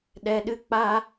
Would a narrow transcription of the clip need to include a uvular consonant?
no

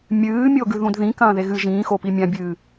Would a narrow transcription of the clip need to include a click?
no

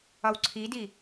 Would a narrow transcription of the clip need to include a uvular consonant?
no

